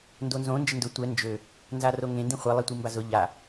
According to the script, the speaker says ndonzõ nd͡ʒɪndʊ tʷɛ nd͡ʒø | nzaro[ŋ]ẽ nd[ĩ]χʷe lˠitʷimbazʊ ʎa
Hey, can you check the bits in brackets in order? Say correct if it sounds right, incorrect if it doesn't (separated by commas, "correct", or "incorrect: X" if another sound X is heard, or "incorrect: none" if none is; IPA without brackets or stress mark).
correct, correct